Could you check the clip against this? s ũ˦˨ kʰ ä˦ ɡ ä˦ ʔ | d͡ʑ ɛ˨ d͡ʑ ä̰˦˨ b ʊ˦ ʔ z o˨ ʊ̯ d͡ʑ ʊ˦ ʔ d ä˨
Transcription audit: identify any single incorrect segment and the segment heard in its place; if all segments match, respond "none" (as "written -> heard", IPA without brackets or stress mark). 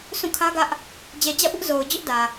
none